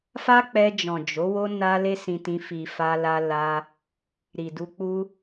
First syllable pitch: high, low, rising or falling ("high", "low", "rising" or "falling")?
high